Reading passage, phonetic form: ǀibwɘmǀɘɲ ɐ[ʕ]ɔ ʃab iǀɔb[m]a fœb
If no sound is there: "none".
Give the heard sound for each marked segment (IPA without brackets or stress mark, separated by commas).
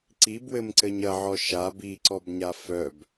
ʕ, ɲ